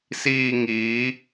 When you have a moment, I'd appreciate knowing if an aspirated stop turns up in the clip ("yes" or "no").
no